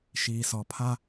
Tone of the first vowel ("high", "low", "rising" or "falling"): low